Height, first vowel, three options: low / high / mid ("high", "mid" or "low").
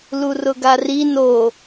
high